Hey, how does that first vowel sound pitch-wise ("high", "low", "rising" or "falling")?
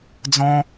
high